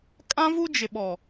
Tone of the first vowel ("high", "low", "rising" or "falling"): high